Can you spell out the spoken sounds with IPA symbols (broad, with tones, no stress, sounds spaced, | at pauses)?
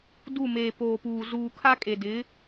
d u˦˨ m eː˨ p oː˨ p uː˨ z uː˨ kʰ a˦ kʼ e˨ d ɪ˨˦